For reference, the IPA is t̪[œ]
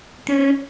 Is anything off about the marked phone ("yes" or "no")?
yes